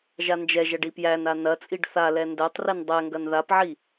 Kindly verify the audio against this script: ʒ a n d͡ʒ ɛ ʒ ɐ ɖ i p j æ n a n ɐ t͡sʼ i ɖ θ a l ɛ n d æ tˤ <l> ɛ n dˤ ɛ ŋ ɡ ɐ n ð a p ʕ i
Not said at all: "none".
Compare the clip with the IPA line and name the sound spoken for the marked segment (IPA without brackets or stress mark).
r